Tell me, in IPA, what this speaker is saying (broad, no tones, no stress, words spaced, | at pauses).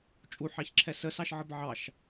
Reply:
t͡ʃʼuħɑçǁʰɛ səsɑʃʕəb ʕɑʃ